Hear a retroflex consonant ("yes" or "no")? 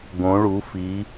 yes